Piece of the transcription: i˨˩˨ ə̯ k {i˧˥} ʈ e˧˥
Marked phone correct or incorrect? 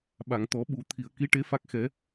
correct